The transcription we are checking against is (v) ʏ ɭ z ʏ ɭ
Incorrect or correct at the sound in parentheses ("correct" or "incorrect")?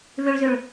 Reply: correct